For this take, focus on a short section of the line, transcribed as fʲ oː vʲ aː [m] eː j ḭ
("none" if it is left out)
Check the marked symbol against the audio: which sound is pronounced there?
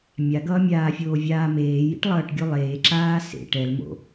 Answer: m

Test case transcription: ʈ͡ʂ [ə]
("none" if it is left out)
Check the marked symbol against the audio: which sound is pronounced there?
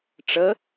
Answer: ə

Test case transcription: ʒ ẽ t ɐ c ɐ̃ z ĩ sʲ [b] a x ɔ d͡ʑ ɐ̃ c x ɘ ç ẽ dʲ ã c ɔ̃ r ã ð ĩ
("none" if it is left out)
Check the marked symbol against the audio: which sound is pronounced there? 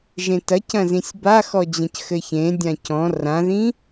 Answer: b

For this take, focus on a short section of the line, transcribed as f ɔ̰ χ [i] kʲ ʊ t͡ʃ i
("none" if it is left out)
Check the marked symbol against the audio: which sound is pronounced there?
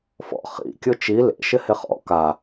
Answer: ḭ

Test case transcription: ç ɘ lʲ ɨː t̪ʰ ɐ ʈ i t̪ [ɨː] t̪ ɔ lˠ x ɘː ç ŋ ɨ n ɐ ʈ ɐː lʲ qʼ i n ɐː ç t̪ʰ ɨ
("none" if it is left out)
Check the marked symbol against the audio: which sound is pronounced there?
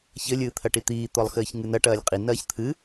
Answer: iː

